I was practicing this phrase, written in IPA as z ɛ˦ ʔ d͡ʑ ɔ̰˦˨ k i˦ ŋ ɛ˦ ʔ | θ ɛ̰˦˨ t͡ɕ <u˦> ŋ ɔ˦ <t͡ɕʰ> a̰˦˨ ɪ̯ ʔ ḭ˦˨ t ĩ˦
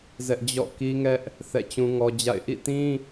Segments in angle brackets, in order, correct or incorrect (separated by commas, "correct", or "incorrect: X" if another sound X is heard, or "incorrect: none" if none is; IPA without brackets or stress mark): incorrect: ũ˦, incorrect: d͡ʑ